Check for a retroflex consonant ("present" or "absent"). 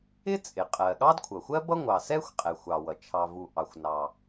absent